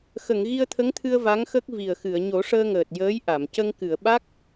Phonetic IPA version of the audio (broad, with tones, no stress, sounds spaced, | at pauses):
x ə˨˩˨ ŋ ɣ i˧ ə̯ t̪ʰ ə˧˥ ŋ t̪ʰ ɨ˧ ə̯ v a˧˥ ŋ x ə˦˥ k̚ v i˨˩ ə̯ x ɨ˨˩˨ ə̯ ɲ o˨˩˦ ʂ əː˧ ŋ əː˨˩ t̚ j əː˧˥ j ʔ a˨˩˨ m c ə˧ ŋ k ɨ˨˩˨ ə̯ ɓ a˦˥ k̚